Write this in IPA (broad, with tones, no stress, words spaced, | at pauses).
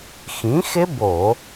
xĩ˩˥xɪ˦˥ bo˧˩˧